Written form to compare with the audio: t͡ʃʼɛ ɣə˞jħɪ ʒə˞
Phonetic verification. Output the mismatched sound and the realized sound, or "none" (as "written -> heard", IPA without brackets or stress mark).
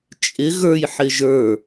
ɛ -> ɪ